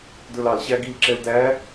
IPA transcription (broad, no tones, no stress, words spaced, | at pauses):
də˞lɑl ɕæɡil ǁɛldæ